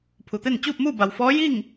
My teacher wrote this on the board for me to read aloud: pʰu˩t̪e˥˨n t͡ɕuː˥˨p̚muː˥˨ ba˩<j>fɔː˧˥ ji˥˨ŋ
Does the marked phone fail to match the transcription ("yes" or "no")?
yes